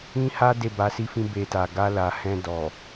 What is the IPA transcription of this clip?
ĩ˦ha˦ de˦˨ba˧si˦fĩ˦ be˧ta˨ ɡa˧la˨hɛ̃˧ dɔ˨

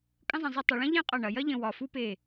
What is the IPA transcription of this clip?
kʼə̃˥zˤɐ̃˧ zˤi˧ tˤə˩˧ɭɐ̃˥ ʎẽ˥qʼɐ˧˩ɳɐ˩˧ jɐ˥ʎə̃˧˩ wɒ˧˩ fu˥pe˧˩

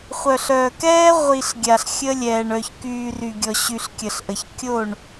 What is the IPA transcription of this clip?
χʷœ˨ɬœː˨kɛː˦ ʁʷi˨ɬ ɡʲa˨ɬxʲə˦lʲɛː˨ɳ œ˨çkyː˨ ry˨ɡʲɔ˨ ɕy˨ɬ kʲə˨ɬʔə˨ç kʲo˦˨ɳ

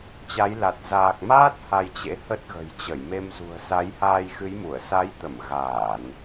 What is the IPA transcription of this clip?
t͡ɕa˨˦jla˨˩t̚ zaː˨˩k̚maː˦˥t̚ ha˧jt͡ɕḛ˧˥ hə˦˥t̚ɣə̤˨˩jt͡ɕə˧˩j me˧mzṳ˨˩ə̯ sa˨˦jhaː˧jxɨ˨˦jmu˧˩ə̯ sa˨˦jt̪ə˧˩m ɣaː˧˩˨n

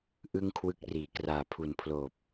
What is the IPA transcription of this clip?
ʔɯ˥˩ŋkʰwɯ˦˥k̚riː˩˦ kraː˨˩pʰu˨˩npʰloː˨˩p̚

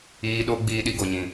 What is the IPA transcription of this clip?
iː˧ɗo˦ ɡ͡biː˧ɗi˧ ɡo˨ɲĩ˨

